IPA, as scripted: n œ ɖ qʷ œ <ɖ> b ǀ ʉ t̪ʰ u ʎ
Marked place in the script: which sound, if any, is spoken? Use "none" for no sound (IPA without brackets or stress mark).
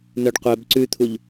none